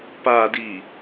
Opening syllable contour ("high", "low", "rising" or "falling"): low